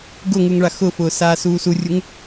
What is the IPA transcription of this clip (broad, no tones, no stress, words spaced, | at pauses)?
ɡʊŋuŋ ɭaxʊfʊː saːsuːsurʲuŋ